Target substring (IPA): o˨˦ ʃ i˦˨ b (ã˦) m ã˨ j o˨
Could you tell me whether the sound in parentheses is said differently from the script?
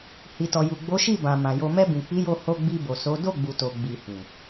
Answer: yes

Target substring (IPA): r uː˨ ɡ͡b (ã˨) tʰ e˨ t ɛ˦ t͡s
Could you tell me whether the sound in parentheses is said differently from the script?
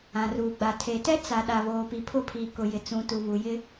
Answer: yes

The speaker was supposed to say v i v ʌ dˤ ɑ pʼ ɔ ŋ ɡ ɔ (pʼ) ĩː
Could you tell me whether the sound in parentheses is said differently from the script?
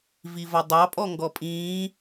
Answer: no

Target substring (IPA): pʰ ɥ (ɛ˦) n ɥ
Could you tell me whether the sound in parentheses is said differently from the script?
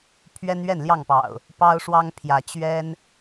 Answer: no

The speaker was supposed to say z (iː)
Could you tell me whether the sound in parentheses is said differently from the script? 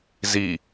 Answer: yes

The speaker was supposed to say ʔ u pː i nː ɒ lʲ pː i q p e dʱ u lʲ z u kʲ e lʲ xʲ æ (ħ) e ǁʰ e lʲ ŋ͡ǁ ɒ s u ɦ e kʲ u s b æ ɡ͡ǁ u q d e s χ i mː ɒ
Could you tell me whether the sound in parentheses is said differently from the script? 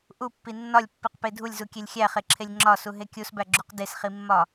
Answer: yes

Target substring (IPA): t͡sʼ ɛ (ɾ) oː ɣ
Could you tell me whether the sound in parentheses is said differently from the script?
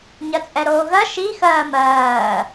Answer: no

